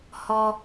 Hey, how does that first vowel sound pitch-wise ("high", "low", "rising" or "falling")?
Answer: low